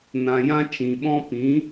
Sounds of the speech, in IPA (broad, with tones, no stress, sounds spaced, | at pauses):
n ã˧ j ã˦ t͡ʃ ĩ˨ ɓ ɔ̃˦ p ĩ˨˦